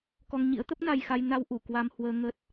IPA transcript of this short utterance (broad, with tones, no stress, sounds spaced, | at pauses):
k ɔ˧ ŋ ɲ ḭ˧˥ ə̯ t̪ ə˦˥ p̚ n a˧ j x a˧ j n a˧ w ʔ u˧˩ k w a˧ m h w əː˧ ŋ ə˦˥ t̚